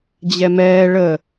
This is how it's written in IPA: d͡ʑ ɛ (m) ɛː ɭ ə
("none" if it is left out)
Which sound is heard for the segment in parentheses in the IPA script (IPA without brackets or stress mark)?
m